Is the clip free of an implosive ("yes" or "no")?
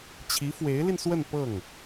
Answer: yes